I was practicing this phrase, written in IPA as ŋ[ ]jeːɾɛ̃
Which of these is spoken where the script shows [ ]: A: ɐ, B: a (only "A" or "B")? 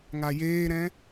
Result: B